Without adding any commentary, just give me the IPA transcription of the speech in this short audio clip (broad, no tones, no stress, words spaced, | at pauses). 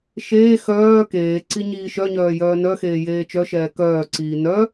ʃeː xœː keːǀi ɲiːʃœɲœː jœːnœxeː jeːt͡ʃœʃɛː kœːǀiː nœ